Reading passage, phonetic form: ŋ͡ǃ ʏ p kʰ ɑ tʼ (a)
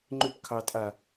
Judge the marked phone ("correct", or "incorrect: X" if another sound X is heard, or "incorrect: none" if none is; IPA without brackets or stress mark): correct